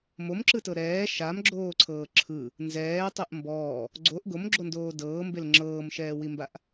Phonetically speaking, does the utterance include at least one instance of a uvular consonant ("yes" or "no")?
no